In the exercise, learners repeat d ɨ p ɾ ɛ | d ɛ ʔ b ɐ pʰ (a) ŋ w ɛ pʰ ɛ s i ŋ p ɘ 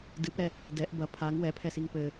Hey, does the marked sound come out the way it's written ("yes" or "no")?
yes